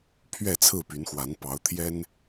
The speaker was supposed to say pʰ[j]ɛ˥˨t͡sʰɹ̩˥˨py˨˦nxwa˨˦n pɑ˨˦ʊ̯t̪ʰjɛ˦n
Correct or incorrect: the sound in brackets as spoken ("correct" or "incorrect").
incorrect